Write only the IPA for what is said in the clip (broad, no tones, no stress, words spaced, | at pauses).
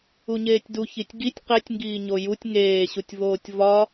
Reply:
uɲeːtʲdu çitʲɡitʲ qetʲŋɡiːɲo jutʲ ŋeːɕutʲvoːtʲ vɒ